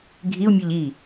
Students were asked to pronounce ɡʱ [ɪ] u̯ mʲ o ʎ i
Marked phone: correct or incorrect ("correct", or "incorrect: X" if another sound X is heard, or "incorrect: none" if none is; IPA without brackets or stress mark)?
incorrect: i